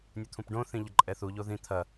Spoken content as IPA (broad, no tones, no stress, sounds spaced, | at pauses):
nʲ u t̪ʰ ũ p ɖ õ θ ĩ ʎ ɐ ǃʼ ɛ θ u ʎ o ð ĩ t̪ʰ ɐ